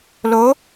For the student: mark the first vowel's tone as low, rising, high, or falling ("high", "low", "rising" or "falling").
rising